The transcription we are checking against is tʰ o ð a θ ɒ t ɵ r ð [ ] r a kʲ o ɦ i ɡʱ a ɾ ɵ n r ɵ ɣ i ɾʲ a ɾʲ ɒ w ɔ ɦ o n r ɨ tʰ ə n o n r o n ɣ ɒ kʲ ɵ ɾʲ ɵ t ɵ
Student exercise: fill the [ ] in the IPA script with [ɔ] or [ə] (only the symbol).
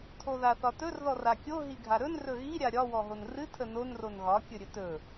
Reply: ɔ